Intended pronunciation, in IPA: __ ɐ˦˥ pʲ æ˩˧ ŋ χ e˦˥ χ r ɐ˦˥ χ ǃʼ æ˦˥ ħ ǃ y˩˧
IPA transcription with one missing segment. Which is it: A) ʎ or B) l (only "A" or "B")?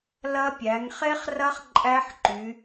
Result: B